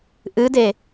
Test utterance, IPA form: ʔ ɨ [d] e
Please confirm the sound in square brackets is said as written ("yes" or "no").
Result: yes